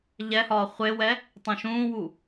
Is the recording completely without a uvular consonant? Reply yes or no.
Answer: no